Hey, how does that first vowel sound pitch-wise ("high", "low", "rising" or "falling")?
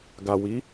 low